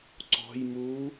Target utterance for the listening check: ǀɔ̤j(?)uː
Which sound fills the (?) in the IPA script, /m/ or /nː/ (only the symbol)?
m